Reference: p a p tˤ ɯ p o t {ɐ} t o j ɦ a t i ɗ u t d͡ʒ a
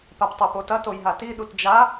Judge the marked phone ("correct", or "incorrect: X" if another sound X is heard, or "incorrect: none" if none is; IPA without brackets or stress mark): correct